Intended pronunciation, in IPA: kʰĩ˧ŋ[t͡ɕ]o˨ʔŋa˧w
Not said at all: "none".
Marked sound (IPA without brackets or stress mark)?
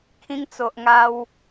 t͡s